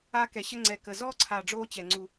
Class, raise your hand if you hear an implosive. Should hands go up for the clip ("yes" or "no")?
no